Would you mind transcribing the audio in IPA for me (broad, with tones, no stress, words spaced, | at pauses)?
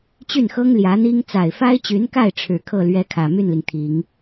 t͡ɕy˥˩nxɤ˥ŋ ljä˧˥n̪i˥ŋ t͡sa˨˩ɪ̯fa˥ɪ̯t͡ɕy˧˥nka˥˩ɪ̯ ʈ͡ʂʰɻ̩˨˩kʰɤ˥˩ lɥɛ˥kʰä˨˩ my˥˩nli˩ŋt̪ʰi˨˩˦ŋ